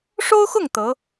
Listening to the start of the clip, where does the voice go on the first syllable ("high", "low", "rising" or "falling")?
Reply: high